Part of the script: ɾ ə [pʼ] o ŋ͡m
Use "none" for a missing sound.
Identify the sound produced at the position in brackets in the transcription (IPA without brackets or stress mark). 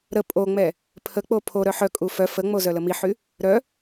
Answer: pʼ